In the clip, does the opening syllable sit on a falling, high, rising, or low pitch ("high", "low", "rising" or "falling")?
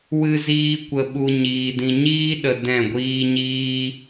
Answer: high